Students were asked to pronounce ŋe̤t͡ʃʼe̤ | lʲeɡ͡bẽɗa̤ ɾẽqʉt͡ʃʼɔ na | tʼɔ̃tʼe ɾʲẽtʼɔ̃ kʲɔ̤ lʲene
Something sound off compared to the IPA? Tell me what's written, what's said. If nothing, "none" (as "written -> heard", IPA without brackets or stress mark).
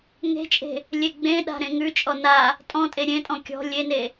q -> ŋ